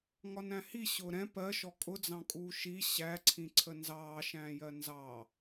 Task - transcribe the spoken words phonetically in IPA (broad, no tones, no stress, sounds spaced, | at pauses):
ŋ ɒ n æ̃ h i ɕ ʊː ɾ ɛ̃ p ɜ ʃ ɔ kʼ ʊ d͡z ɑ̃ kʼ uː ʃ i ɕ æ ǀʰ ĩ ǀʰ ə n z ɑː ʃ æ̃ː j ɜ n z ɑ